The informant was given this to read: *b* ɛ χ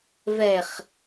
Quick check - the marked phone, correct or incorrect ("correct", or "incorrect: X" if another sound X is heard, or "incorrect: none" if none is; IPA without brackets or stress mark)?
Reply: incorrect: v